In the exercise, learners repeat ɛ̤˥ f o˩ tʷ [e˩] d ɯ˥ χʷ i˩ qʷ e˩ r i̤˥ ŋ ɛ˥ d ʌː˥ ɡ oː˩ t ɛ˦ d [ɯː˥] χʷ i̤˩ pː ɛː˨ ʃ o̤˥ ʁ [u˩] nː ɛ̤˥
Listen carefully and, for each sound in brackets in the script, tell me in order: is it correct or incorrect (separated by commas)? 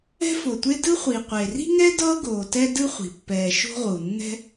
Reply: incorrect, incorrect, correct